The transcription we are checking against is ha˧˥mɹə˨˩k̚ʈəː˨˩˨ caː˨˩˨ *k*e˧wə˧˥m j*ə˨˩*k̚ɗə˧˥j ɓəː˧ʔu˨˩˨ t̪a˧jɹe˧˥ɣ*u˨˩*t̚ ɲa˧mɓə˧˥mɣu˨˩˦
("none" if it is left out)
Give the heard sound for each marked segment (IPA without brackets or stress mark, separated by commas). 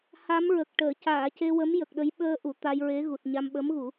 c, ə˨˩, u˨˩